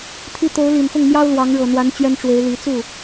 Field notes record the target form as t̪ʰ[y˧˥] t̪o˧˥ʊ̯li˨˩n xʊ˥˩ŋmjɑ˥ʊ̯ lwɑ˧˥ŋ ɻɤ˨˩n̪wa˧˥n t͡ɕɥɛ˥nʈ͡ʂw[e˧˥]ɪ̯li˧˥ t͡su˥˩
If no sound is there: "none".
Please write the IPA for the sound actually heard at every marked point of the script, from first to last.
i˧˥, e˧˥

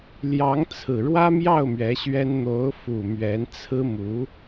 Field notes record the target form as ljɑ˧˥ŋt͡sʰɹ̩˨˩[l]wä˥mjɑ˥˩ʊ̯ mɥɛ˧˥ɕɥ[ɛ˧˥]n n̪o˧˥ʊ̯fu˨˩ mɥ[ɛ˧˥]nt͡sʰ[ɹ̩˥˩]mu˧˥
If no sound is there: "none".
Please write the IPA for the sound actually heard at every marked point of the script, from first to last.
ɻ, ɛ˥, ɛ˧˥, ɹ̩˥

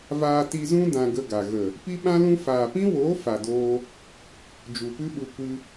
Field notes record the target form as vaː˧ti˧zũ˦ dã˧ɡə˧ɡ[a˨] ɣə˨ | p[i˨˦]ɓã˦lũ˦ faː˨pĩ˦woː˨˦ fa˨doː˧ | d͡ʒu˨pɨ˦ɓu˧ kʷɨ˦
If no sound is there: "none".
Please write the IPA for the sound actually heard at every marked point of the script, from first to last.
a˨, i˦

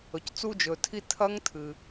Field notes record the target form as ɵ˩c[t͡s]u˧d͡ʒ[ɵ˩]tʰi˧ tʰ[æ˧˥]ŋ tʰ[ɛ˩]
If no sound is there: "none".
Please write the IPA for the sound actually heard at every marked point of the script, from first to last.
t͡s, ɵ˩, ɐ˧˥, ɨ˩

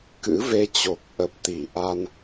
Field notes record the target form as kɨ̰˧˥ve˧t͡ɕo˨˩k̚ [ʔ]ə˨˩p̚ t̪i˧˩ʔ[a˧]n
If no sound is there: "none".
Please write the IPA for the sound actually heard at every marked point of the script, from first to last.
ʔ, a˧

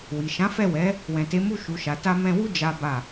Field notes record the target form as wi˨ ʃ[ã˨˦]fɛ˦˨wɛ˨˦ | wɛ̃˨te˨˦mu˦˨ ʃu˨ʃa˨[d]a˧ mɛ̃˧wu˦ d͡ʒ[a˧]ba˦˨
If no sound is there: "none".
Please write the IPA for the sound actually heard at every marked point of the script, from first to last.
ã˨˦, t, a˦

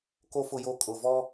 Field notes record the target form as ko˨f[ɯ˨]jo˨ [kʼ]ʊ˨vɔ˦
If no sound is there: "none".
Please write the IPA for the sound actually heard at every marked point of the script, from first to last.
ʊ˨, kʼ

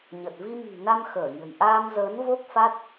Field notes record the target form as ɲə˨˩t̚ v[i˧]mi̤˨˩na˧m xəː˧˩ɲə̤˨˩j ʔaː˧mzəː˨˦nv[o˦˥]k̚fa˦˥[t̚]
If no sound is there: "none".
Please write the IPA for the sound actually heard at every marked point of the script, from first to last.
i˧, o˦˥, t̚

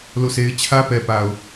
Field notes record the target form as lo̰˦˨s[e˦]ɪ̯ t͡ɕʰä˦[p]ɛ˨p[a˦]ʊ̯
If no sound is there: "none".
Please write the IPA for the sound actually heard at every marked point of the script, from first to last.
e˦, p, a˨

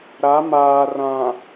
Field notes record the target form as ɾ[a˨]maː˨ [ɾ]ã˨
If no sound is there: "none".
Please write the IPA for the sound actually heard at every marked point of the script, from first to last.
a˨˦, r

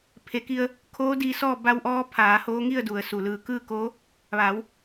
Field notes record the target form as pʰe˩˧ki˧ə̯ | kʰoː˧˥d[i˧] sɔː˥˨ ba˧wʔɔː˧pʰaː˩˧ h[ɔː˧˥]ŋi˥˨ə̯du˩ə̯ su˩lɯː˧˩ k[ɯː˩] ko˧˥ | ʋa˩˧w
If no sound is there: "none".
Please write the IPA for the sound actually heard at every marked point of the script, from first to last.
i˧, oː˧˥, ɯː˥˨

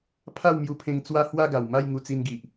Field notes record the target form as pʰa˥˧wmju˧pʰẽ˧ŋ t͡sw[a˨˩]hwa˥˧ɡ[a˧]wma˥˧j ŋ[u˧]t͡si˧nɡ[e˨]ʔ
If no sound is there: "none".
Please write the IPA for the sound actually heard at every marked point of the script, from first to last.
a˦, a˨˩, u˧, i˨

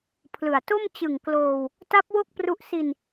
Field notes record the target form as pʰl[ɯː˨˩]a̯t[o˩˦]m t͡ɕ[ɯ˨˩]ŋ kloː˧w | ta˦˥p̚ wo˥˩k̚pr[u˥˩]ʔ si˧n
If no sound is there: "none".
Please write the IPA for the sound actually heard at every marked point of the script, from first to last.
ɯ˨˩, o˥˩, ɯ˨˩, u˦˥

